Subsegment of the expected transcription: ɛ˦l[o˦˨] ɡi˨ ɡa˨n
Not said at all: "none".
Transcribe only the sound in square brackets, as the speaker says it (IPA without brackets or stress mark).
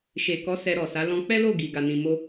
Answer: o˦˨